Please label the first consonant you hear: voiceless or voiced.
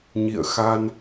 voiced